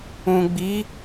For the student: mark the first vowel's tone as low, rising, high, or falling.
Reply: low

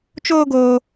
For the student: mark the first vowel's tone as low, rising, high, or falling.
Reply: high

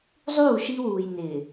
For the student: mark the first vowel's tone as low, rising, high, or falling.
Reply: falling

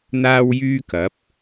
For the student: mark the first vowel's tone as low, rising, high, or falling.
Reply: high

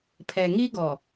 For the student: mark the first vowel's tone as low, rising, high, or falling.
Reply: low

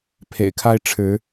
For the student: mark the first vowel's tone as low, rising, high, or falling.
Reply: low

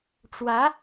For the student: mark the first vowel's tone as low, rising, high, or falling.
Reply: rising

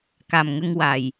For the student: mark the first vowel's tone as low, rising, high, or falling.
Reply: low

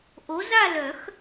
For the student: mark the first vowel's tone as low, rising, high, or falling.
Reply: rising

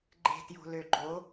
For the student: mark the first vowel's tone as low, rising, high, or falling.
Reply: low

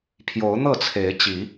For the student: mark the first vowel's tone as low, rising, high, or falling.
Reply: rising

